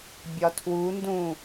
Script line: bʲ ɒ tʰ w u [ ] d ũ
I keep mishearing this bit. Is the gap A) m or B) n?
B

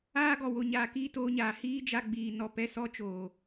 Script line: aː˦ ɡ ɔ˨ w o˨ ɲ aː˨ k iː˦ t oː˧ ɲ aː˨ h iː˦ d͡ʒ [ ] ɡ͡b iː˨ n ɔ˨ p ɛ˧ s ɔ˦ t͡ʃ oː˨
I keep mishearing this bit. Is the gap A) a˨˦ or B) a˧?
B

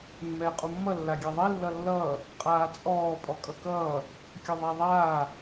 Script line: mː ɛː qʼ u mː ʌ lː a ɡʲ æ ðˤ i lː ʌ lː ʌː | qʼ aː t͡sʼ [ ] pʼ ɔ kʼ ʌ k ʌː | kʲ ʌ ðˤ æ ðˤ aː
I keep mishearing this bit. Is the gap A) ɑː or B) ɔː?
B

